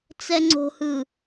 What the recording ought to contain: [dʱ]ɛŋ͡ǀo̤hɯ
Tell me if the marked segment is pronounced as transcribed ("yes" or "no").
no